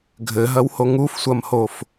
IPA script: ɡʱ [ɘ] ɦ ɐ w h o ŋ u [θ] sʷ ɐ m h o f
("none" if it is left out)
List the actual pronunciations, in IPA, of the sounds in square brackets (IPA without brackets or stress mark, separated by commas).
ɘ, f